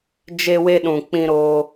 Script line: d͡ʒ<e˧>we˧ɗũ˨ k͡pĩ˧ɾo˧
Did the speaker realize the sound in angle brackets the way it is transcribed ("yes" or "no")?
yes